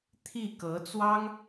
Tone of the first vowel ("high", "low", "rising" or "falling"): falling